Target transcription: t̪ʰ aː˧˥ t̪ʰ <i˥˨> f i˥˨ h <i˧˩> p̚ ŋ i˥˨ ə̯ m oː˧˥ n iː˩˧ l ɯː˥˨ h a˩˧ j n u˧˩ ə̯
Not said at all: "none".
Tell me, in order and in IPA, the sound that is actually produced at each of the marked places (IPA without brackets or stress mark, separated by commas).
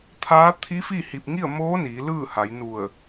i˧˥, i˧˩